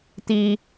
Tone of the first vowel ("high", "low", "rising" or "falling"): high